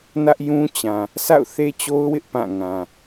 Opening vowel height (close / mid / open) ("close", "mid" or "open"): open